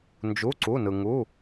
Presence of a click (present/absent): present